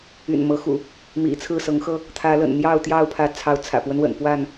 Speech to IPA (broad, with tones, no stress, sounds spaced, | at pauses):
y̰˨˩ n m ɤ˨˦ x ṵ˨˩ | m ḭ˨˩ t͡sʰ ɹ̩˥˨ s ɤ˨˦ ŋ x ɤ˦ | t̪ʰ ä˨˦ l ə̰˨˩ n n̪ j ɑ˥˨ ʊ̯ t̪ j ɑ˥˨ ʊ̯ pʰ ä˨˦ t͡sʰ ɑ˨˦ ʊ̯ t͡sʰ ä̰˨˩ p w ə˦ n w ə̰˨˩ n p w a˥˨ n